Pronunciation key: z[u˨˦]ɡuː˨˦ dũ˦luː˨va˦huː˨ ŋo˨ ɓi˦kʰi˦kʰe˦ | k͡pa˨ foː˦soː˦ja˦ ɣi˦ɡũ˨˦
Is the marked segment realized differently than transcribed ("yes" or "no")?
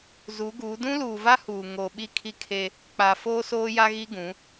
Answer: no